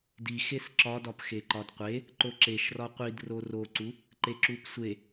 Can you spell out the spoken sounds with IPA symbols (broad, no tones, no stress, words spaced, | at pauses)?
dixes ǁɒdɒp xeǃɒdqʷe | ǃoǁeʃrɒ qʷid roroǀu | ǃeǁupsʷe